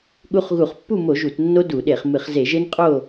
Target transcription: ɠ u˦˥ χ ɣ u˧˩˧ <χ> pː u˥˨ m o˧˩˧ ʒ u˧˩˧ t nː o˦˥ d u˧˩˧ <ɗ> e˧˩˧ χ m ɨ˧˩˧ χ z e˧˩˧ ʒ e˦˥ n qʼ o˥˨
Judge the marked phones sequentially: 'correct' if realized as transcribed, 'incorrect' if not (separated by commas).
correct, correct